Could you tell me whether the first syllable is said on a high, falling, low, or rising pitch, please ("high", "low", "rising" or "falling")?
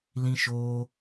high